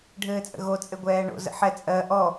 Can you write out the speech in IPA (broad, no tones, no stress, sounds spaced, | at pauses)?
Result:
ɖʱ ɘː t͡sʼ ə̰ ɣ o t͡sʼ ɘ ɡʷ ɛː ɳ o̰ z ə̰ ħ ɛ t͡sʼ ɜ ʔ ɔ